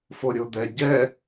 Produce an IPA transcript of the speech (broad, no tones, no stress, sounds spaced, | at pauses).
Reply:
f o ɾʲ o d̪ ɛ ɟ ɛ